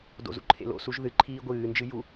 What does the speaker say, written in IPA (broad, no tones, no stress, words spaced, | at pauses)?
do̰zṵǃʰḛl o̰suʒ ðɨǃʰiː ɡʷɨːnd͡ʒɨ ju